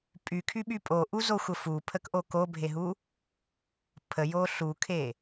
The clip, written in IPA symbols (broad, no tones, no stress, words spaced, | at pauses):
pʼykʰyɓy pʼoʔuzoxʷə fupʰəkʔo kobʱeɦu | pʰəjo ɬukʰe